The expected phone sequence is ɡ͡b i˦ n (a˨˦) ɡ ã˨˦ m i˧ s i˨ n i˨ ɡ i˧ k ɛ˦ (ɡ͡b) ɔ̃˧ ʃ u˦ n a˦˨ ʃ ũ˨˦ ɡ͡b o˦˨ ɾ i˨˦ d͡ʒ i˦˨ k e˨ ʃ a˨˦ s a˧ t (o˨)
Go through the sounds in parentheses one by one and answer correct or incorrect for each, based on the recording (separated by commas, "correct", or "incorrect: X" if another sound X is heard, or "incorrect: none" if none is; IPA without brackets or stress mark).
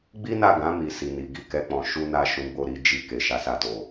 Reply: incorrect: a˦˨, incorrect: k͡p, correct